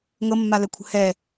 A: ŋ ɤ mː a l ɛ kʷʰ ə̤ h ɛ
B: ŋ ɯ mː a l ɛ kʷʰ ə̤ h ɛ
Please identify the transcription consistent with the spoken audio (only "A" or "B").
A